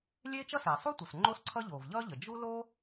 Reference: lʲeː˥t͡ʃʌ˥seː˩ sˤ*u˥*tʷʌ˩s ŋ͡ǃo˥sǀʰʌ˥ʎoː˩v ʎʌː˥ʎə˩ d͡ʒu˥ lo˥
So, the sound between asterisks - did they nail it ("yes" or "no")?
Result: yes